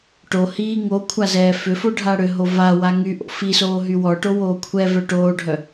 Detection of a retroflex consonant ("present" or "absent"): present